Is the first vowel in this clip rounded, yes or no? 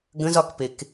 no